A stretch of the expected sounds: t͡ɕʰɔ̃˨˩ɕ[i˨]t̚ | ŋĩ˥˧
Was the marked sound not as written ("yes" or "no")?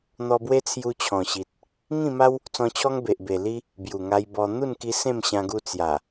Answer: no